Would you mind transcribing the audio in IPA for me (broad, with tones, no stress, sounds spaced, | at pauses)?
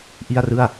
ʔ i˥˩ a̯ r ɯ˥˩ a̯